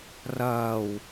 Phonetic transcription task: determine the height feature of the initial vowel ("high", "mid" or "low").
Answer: low